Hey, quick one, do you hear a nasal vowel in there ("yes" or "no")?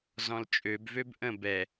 yes